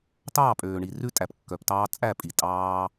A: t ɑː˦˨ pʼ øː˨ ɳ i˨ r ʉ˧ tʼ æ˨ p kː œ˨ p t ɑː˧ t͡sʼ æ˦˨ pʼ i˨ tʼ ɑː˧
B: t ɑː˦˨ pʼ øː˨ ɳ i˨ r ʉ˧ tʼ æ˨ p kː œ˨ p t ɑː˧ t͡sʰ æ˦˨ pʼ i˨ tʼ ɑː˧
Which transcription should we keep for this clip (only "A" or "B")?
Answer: A